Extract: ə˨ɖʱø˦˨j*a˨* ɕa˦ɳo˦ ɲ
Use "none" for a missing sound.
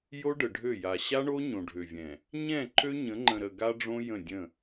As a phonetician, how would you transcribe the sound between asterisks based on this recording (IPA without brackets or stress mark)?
a˨